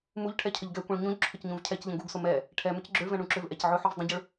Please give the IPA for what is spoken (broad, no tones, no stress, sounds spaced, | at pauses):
m u ʎ ʈʰ ɛ cʰ ə ʎ ɡ ɛ kʷ ɛ̃ ɭ ɲ ũ ʎ ǁʰ ʊ c ɲ ũ v cʰ ɛ c ʎ ə̃ ɡ u ɡ s ʊ m ɛ | ʈʰ ɛ m ʏ c ɡ͡ǁ ʏ ɭ v ɛ̃ ɳ ũ ǁ ʏ v ʔ ɛ c ʕ ʊ ħ u v dˤ ə̃ ɟ ʊ ɭ